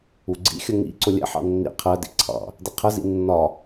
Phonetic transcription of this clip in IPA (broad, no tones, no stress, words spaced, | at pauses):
uɡ͡ǀḭxʲə ŋḭǀʊ lʲɛ̰ħɑ̰ nːḭ qʰɜdḭ ǀʰɑ̰ | dɪqʰəzḭ nːɒ